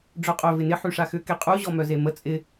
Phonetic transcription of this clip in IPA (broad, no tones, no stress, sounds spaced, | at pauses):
ɖ͡ʐ œ qʼ œ v ɪ n ɪ ħ y ʂ a x ʏ k e qʼ u ʑ ɔ m œ z e m ə t͡sʼ ɪ